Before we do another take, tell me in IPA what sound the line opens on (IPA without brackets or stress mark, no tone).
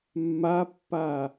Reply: mː